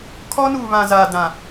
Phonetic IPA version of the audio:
kʰ ɔ˦ n uː˨ β ã˨ z aː˨ d ã˨

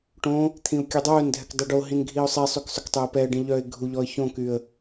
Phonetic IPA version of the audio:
ʈ õ | t̪ʰ ĩ ʊ̯ kʲ ʉ dˤ œː n dʱ ɛ k dˤ y ɖ o ɦ ĩ n ɡʱ i ʊ̯ sˤ i sˤ y k sˤ ɵ k tˤ ɵ ə̯ p ɛ ə̯ ɖ ĩ ʎ œː ɪ̯ ɡʱ u ʎ ɔ ə̯ ç õ k y ə̯

